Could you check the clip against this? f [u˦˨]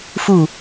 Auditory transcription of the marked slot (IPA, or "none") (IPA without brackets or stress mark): u˦˨